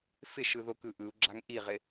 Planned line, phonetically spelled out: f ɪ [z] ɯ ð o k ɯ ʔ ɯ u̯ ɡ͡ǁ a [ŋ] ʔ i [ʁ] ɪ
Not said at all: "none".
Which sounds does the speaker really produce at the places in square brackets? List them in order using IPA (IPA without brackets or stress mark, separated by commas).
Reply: ʃ, ŋ, ʁ